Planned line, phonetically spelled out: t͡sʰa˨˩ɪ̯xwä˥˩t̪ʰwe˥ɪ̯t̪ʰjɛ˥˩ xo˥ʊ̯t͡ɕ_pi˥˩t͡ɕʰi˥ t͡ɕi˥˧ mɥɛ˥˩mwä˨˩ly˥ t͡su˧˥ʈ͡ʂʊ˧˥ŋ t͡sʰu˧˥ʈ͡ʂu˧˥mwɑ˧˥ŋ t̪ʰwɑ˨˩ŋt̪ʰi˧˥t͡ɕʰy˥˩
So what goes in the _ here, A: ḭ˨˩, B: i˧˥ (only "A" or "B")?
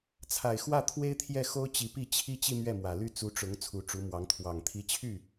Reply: B